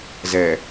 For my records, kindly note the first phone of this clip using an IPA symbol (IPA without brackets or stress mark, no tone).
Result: z